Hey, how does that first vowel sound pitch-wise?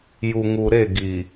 low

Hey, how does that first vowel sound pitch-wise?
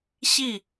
falling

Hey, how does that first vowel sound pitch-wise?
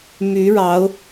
rising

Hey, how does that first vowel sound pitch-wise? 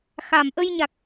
low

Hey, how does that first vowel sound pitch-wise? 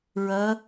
rising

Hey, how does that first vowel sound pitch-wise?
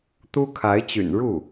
high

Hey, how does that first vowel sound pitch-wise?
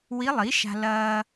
rising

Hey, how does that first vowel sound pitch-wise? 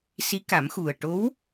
rising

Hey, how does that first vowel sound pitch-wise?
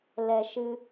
low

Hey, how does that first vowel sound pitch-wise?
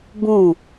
falling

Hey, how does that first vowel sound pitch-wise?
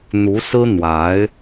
rising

